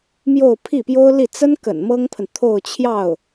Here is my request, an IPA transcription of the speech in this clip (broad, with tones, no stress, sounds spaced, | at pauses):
m j o˥˧ ʊ̯ pʰ i˥˩ p j o˥ ʊ̯ l i˥˩ t͡s ə˥ n k ə̰˨˩ n m ɤ˥ ŋ pʰ ə˨ n t̪ʰ o˥˧ ʊ̯ t͡ɕʰ j ɑ˥˩ ʊ̯